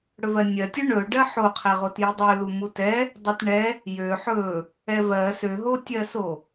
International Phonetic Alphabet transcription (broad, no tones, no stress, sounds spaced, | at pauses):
ɽ ɵ v ɜ nʲ ɜ tʲ ɵ ɳ ɵ ɖ ɜ ħ o qʰ ɛ ʁ o t j i dˤ ø l u m u t ɛ | dˤ i t ɳ ɛ | j ø ħ ɵ | ɛ v ɜ s ø ɦ o tʲ ɜ s o